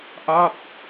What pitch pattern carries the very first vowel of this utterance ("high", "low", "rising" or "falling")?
falling